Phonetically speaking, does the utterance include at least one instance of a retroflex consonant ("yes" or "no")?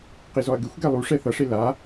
yes